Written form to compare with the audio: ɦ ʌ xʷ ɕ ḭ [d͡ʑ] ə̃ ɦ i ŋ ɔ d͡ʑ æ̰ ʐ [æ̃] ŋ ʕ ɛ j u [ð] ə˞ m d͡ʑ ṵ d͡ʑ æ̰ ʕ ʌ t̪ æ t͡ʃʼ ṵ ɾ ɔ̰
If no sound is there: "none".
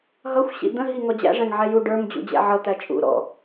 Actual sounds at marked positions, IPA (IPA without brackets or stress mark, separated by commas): d̪, æ̃, ɖ